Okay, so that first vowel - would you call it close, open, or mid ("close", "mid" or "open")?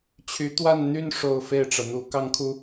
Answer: close